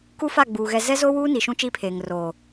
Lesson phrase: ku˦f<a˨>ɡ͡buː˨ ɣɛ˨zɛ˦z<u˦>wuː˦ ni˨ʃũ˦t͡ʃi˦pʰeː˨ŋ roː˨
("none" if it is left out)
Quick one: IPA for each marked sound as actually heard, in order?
a˦˨, o˦

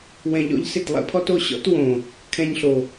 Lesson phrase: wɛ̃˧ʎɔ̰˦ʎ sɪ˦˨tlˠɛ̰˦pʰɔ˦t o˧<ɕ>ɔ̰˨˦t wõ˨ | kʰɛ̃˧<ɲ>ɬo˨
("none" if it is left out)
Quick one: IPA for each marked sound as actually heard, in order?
ɕ, ɲ

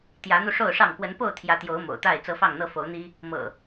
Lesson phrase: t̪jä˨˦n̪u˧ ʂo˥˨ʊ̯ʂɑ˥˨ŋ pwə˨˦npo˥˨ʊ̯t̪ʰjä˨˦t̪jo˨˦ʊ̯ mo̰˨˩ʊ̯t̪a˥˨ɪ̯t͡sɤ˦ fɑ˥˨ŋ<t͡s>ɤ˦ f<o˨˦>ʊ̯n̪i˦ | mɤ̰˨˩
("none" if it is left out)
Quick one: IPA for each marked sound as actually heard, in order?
n̪, o˨˦

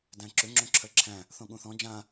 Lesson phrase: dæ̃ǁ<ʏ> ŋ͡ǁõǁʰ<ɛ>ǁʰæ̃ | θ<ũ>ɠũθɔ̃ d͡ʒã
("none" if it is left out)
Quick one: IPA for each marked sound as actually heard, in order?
ʏ, ɜ, õ

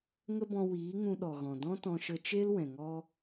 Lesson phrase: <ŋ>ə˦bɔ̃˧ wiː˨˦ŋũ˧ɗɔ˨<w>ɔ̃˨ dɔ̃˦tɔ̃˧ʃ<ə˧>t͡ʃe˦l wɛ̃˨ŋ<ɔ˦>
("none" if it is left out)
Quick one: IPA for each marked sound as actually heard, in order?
ŋ, ɣ, ə˧, ɔ˦

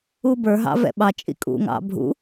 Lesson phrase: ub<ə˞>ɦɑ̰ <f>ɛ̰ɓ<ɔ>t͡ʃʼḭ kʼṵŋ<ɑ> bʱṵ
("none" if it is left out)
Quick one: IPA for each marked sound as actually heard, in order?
ə˞, v, ɑ, ɑ̰

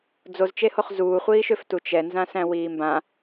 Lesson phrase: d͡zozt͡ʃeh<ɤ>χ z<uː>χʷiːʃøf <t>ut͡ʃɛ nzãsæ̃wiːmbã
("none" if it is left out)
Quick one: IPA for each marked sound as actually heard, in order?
o, uː, t

